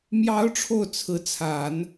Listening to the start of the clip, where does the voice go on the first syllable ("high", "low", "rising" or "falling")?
rising